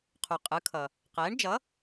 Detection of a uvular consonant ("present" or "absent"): present